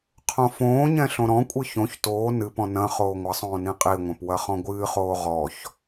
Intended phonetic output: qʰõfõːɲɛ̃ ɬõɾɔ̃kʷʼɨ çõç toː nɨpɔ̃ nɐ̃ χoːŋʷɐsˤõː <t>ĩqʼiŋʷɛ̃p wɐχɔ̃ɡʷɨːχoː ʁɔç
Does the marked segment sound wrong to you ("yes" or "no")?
yes